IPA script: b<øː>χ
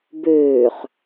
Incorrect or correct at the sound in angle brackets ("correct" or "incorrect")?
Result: correct